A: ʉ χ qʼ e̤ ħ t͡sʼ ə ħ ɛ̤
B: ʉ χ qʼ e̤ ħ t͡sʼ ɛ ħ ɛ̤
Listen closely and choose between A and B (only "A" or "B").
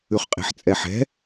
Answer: B